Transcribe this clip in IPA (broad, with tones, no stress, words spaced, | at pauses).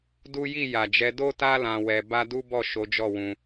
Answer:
du˦ ji˦˨ ja˨d͡ʒɛ˨˦ do˦ta˦ lã˧wɛ˧ ba˦ du˦bɔ˦˨ ʃo˨˦d͡ʒɔ˦˨wũ˧